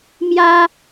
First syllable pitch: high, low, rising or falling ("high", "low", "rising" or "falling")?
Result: high